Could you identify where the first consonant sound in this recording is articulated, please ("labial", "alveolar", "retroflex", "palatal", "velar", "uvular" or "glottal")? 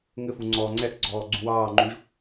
velar